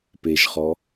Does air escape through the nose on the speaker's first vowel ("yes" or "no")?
no